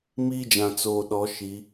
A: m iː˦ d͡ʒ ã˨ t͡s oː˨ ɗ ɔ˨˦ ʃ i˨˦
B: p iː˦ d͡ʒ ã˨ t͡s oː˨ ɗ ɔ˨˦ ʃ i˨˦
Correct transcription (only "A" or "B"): A